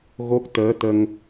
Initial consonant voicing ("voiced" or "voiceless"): voiced